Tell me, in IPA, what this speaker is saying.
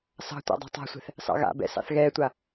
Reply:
s ɑ̤ tʷ a̰ dˤ ɑ̤ tˤ a̤ sʷ ɛ̤ θ | s ɑ̰ ɣ a̰ b ɛ̰ s ɑ̰ θ ɣ ɛː tʷ a

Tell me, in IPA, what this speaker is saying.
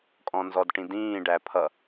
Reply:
kʼ ɔ̃ n z ɔ d ʈ ĩ d ĩː ɖ æ pʰ ʌ

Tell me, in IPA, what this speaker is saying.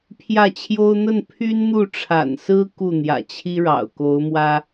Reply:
pʰ j ä˥˩ t͡ɕʰ j o˥ ʊ̯ n̪ ə˥˩ n pʰ y˥ n n̪ u˥˩ ʈ͡ʂʰ a̰˨˩ n s ɹ̩˥ k u˥˩ n̪ j ä̰˨˩ t͡ɕʰ i˥ ɻ ɑ̰˨˩ ʊ̯ k o˧˥ ʊ̯ m w ä˥

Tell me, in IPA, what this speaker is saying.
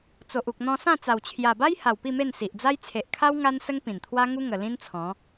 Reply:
t͡s o˨ ʔ u˨ k̚ n̪ ɔ̃˧ s ã˥˧ t͡s a˨˩ w t͡ɕʰ j a˨˩ b a˦ j h a˨˩ w p i˥˧ m e˥˧ n s i˨ ʔ d͡z a˦ j t͡sʰ e˨ ʔ kʰ a˦ w ŋ a˦ n s ə˦ ŋ p ĩ˨˩ n t̪ʰ w a˦ ŋ u˦ ŋ ə˨˩ l ĩ˦ n t͡sʰ ɔ̃˨˦

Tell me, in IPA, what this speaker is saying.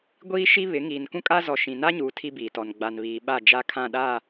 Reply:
ɡʷ iː˦ ʃ i˦ β ɪ˨˦ ŋ iː˨ n k ũ˦ kʼ a˦ z ɔ˨ ʃ ĩ˨ n a˦ ɲ uː˨ tʰ i˦ b iː˨ t ɔ˨ n ɡ͡b a˨ n β iː˨ ɓ a˦˨ d͡ʒ a˦ kʰ ã˦˨ ɗ a˦˨

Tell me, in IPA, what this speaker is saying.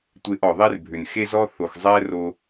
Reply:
tʷ e˧ ʔ ɔ˩ ðˤ e˥ r bʱ ʏ˩ n x e˥ z ɔ˥ θ o˩ x zˤ ɛ˥ r o˧

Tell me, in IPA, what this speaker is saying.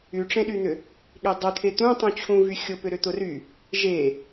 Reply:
y ʈ͡ʂ ẽ ɗ y n̪ ʏ | ɠ e dˤ ʊ t̪ʰ e t̪ ũ tˤ ũ t͡ɕʰ ũ v y xʲ ʊ p ʏ ɾ ʏ t̪ ʊ r y | ʒ e

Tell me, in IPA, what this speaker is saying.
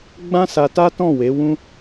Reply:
ɡ͡b ã˦ s a˧ t a˦ t ɔ̃˦˨ w e˨˦ w ũ˦

